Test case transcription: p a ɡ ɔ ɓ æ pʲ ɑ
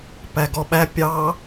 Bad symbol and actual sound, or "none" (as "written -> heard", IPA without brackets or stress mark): a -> æ